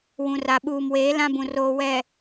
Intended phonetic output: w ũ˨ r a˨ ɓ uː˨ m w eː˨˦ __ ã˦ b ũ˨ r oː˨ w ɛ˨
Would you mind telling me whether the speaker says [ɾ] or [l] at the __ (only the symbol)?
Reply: l